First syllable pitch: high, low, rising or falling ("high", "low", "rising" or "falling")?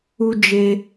high